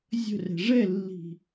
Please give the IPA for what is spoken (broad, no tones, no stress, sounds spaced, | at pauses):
zʲ ə̤ r ɛ̤ ʐ ɛ lː i̤